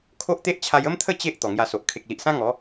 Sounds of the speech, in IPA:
kʰo˦ʔt̪e˦ʔt͡ɕʰa˧j ə˦mt̪ʰə˥˧ t͡ɕe˦ʔ t̪ɔ˨˩ŋja˧so˨ʔ kʰe˨k̚li˨ʔsã˦ ŋɔ˨˦

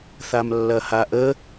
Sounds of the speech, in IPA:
θamlːɐhaʔə

